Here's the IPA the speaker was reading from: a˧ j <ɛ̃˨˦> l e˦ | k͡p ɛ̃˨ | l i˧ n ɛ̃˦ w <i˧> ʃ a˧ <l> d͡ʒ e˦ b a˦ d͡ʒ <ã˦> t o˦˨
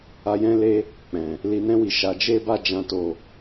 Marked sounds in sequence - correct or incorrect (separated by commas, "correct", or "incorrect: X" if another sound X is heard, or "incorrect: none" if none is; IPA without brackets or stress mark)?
incorrect: ɛ̃˦, correct, incorrect: none, correct